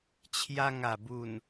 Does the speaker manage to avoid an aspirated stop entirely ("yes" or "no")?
no